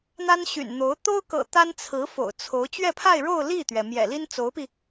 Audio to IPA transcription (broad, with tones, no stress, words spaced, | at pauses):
n̪a˥nɕy̰˨˩nn̪o˧˥ʊ̯ t̪o˥ʊ̯kɤ̰˨˩ t̪a˥nt͡sʰɹ̩˧˥fo̰˨˩ʊ̯ t͡sʰo˧˥ʊ̯ t͡ɕɥɛ˥˧pʰa˥˧ɪ̯ɻo˥˧ʊ̯ li˥˩t̪ɥɛ˩ mjɛ̰˨˩li˥n t͡so˧˥ʊ̯pi˧